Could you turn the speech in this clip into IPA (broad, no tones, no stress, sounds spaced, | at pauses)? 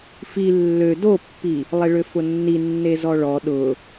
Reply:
f i lː ø d o pː i | lˠ e ɭ ø f ʊ nː i nː e z ɔ ɭ ɔ ɗ ʊ